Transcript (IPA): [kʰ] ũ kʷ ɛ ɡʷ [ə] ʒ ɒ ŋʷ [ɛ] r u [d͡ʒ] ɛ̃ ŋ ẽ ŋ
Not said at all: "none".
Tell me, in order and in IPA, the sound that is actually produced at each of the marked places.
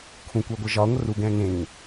kʰ, ə, ə, ɡ

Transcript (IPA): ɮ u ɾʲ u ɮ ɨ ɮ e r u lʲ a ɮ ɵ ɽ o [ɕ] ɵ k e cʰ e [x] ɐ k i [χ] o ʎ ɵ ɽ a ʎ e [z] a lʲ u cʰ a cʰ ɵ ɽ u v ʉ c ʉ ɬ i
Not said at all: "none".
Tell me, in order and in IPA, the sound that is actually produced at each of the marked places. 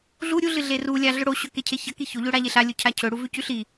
ɕ, ç, ç, ɬ

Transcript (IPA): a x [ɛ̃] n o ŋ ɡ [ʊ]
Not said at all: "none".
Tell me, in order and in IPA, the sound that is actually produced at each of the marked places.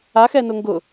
ɛ, ʊ

